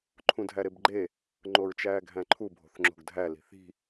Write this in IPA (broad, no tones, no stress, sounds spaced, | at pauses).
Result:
ǃʰ ũ dʱ æ ɾ e b ɡ͡ǃ e | ŋ͡ǃ o ɹ t͡ʃ æː ɡʱ æ̃ ǃʰ u bʱ o̤ θ ŋ͡ǁ o̤ ɡ dʱ æ l i̤ θ i̤